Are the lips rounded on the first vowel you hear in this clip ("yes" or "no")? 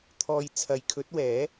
yes